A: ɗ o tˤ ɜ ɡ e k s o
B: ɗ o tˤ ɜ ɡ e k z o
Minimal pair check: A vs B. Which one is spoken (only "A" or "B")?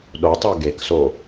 A